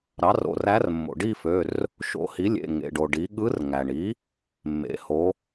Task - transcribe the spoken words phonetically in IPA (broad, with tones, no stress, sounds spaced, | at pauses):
ɾ ɑ˩˥ r o̰˩˧˩ r æ˧˥ r mː o̰˩ ɖ i˥˧ f ø˩˧˩ r | ʃ o̰˧˥ h i˩˥ lʲ ḛ˩˧˩ ŋ ḛ˩˧˩ ɖ o˩ ɖ i˩˥ ɠ ɯ˧˥ r ŋ æ˩ ɳ i˩˥ | mː ḛ˩˧˩ h o˩˥